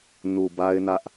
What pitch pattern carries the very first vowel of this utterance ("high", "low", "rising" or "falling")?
low